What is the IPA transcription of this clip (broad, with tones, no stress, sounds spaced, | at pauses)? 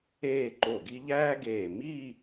eː˥˧ ǃ o˧˩ ɡ i˥ ʎ æː˥ ɡ eː˧˩ m iː˥˧